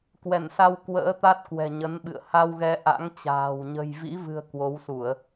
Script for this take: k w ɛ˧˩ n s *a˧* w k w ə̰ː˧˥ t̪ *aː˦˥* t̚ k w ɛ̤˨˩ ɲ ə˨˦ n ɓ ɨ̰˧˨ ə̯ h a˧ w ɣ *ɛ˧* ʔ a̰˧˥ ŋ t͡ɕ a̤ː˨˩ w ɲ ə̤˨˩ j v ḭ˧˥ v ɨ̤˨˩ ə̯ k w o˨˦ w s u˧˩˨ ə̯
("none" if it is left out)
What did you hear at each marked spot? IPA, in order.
a˧, a˦˥, ɛ˧

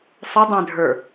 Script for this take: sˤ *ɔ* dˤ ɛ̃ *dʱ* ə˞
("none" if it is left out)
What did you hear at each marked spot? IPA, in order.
ʊ, dʱ

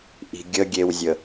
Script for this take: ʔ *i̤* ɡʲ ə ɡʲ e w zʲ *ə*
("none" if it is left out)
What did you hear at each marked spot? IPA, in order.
i̤, ə

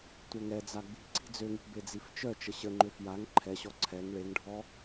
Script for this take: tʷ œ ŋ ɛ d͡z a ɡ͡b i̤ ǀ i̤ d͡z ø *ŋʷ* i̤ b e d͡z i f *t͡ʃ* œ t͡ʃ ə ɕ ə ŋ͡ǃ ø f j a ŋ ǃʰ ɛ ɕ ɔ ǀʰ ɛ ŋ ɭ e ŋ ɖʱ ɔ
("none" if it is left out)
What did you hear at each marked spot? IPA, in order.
ŋ, t͡ʃ

